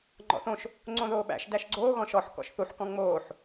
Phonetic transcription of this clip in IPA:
ŋ͡ǃ ɔ̰ θ õ ʃ | ŋ͡ǀ õ ð oː ɓ æ̰ ʃ d æ ʃ ɡ͡ǀ oː ɣ ɔ̃ ʃ ɔ ħ k ɔ̰ ʃ θ u ħ k ɔ̃ ŋ͡m oː ħ

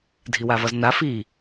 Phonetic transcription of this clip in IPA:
dʱ i w a v ʌ z n a f i

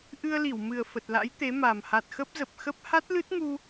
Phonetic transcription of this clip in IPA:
ʔ ɨ˧ ə̯ l i˧˩ w m ɨ˨˩ ə̯ f ə˨˩ t̚ l a̰˧˥ j t̪ e˨˦ m a˨˩ m h a˨˩ t̚ x ə˦˥ p̚ z ə˨˩ p̚ x ə˦˥ p̚ h a˦˥ t̚ l ɨ˦˥ t̚ ŋ u˧

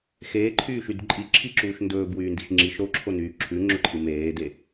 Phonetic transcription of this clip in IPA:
x eː ǃʰ yː ʃ y d ǃʼ i ǁʰ i ǁ uː ʃ n d ɵː b w yː n d i ʃ ŋ͡ǁ i ʃ ɾ o ǁʰ o n yː ǁʰ ʉ ŋ͡ǁ ɵ ǃʰ i m eː d e

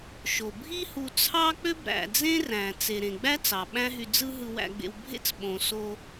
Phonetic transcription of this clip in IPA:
ʃ o˩ bʱ i˥ h u˧ t͡sʰ ɑ˥ k͡p ø˥ b ɾ æ̰˩ d͡z ẽ˥ r æ̃˩ t͡s e˩ ɾ ẽ˩ ɡ͡b æ˥ t͡s ɑ˩ ɓ æ̃˥ ɦ y˧ d͡z ɯ˥ ɦ ɯ˧ w æ̰˧ ɡ͡b ḛ˧ w bʱ ḛ˥ t͡s ɓ õ˩ s o˧

